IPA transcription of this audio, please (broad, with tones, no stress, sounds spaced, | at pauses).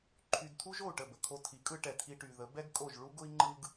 ǃʰ y˧ d tʰ u˥ ʒ o˥˩ u̯ ʈ ə˥˩ b ə˩ kʰ o˧ tʰ i˩˥ kʼ ɯ˧ ʈ ɛ˩ tʰ i˧ ʈ y˩ ð ə˩˥ b ɛ˥ ɡ kʼ o˥˩ ʒ ɭ u˥ ɡ ʊ˥ i̯ ŋ͡ǃ ɯ˥ ɡ